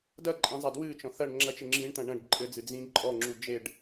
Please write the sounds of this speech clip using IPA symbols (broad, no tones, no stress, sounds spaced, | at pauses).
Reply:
d ɐ ǃʼ ĩ zˤ a d w ɨ t͡ʃ ɔ̃ θ ɐ ɳ ŋ͡ǁ ɐ t͡ʃ ɘ ŋ͡ǁ ĩ ɳ t̪ ɐ̃ ɳ ɐ̃ ɖ ǃʼ ɘ d͡z ɨ d͡z ĩ ǃʼ ɔ ŋ͡ǁ u d͡ʒ e ɖ